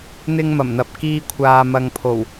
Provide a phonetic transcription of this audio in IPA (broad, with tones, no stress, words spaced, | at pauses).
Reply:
n̪ɪ˧ŋmɐ˨˩mn̪ɐ˨p̚ kiː˧kʷʰaː˨mɐ˨ŋpʰo˨˩w